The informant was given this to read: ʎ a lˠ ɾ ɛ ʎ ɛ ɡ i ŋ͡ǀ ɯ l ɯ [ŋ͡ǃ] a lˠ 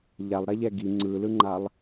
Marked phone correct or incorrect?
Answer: correct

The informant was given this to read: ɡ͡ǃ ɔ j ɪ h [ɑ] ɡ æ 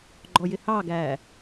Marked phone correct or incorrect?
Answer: correct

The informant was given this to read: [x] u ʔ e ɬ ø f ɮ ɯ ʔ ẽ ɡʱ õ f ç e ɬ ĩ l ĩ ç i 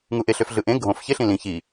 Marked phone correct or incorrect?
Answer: incorrect: ŋ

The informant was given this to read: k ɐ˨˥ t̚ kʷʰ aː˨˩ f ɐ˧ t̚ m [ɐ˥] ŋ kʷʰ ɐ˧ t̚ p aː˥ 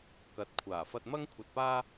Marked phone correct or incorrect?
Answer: correct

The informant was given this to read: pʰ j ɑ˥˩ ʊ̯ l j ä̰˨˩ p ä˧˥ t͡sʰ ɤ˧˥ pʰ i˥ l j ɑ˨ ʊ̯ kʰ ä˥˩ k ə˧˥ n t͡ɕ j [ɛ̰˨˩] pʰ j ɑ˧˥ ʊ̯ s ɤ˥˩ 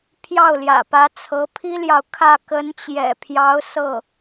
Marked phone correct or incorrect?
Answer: correct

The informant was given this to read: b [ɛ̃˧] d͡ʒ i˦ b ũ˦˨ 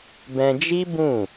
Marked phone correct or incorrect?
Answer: correct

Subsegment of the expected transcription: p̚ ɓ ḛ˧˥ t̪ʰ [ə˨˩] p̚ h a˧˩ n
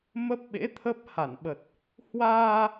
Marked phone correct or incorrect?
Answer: incorrect: ə˦˥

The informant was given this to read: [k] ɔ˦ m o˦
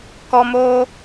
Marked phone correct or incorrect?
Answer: correct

